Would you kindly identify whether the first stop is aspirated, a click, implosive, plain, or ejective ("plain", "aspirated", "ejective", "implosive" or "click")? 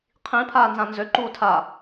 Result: aspirated